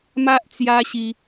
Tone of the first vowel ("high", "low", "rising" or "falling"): high